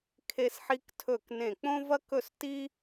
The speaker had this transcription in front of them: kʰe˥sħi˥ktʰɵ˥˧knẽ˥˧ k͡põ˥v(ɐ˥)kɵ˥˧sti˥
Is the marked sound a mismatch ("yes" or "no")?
no